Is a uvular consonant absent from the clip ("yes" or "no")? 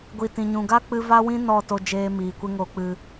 yes